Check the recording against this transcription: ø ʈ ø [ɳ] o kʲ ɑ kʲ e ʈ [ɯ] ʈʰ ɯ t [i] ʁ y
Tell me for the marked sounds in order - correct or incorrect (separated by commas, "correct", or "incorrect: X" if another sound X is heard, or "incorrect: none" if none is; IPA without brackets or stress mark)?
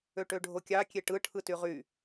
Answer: incorrect: ɖʱ, correct, incorrect: y